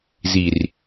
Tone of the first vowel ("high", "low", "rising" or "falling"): low